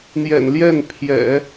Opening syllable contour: low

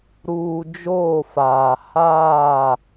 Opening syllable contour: low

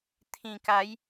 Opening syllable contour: low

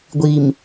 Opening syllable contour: low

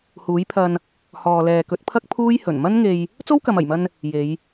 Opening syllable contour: rising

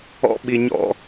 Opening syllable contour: high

